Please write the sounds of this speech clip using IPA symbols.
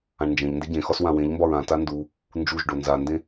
ãɳnd͡ʒẽʎnde ɟẽxɒs wãwẽʎmbɒɹ ãta ndu | nd͡ʒuʒɖo nzandẽ

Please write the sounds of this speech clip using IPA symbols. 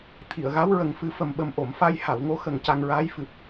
t̪ʰi˨˩˨ə̯ɣa˧˥w ɹə˨˩ŋfɨ˨˩˦fə˨˩mɓə˨˩m ʔo˨˩˨mfa˧j ha˨˩˨wŋo˧˥xə˨˩ŋ ca˧ŋɹaː˧˥j fɨ˨˩p̚

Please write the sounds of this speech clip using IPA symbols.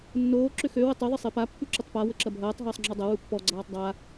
nːoː ǁʏxø wətˤe ðˤɪsˤepa pːyǁətˤpa wəǁɐbʱɐːtˤ ɦɐːsˤŋ͡ǁɔdˤɐ wupːɔ ɡ͡ǀaːtˤdˤa

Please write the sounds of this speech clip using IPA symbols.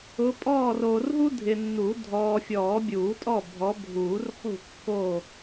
ʊ˨˦pʼɔː˥˨r oː˨rɦu˥dʱɪ˨nːu˨˩˦ dʱɔː˨fʲɔː˨˩˦ bʲuː˨˩˦tʼɔ˥˨ bʱɔ˨˦bʱuː˨˩˦rχṳ˥˨ kːo˥˨

